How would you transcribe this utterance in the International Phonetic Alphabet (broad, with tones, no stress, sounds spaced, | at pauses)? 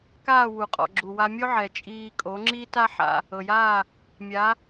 k aː˥˩ w u˩ qʼ ɔ̰˩ ɡ͡ǁ u˩ w a˧ mʲ o˥ ʕ ɛ˩ t͡ʃʼ iː˧ kʼ o˩˥ ŋ͡ǁ i˥ t a˥ ħ a̰˧ | ɤ˩ j aː˥˩ | mʲ a˩˥